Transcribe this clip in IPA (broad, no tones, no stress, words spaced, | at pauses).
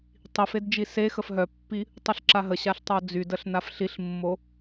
tˤif edd͡ʒisexəf ɦœpːi | tˤuɬǁaɦəɕaɬ tˤod͡zydəɬ nafɬiɬmːo